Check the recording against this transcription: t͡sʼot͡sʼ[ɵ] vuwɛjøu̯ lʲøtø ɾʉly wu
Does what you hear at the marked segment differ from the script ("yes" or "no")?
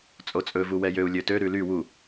no